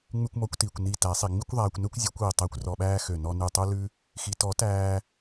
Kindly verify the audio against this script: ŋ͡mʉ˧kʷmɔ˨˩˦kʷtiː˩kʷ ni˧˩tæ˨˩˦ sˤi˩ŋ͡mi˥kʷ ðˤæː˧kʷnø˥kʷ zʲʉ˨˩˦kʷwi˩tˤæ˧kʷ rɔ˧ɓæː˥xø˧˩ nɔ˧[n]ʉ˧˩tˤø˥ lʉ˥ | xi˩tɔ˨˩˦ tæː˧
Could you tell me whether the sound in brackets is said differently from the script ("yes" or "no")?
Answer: no